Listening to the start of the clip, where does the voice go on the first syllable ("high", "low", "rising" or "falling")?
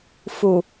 low